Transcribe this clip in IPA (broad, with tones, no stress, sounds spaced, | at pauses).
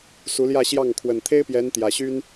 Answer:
s u˧˥ l j ä˥˧ ɕ j ɑ˥˩ ŋ kʰ w ə˨˩ n t̪ʰ e˥ ɪ̯ p j ɛ˧˥ n t̪ j ä˨˩ ɕ y˥ n